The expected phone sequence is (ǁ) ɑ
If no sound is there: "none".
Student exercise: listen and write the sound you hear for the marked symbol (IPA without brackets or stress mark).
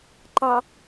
ǃ